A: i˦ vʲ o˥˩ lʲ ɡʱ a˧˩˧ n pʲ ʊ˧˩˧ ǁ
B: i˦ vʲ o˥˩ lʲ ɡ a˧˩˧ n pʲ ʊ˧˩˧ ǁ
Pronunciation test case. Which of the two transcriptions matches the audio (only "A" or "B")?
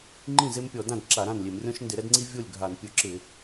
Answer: A